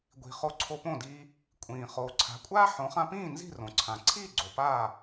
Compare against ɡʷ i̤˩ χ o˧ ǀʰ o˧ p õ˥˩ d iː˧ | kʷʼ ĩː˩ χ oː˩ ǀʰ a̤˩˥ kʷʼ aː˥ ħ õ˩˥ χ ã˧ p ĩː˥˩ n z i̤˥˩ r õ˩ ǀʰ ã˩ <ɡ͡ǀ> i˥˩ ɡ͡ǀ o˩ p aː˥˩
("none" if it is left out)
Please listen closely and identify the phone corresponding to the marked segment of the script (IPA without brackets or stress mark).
ǀʰ